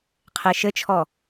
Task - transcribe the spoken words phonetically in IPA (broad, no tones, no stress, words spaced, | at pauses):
qʰeʃɘt͡ʃʰɔ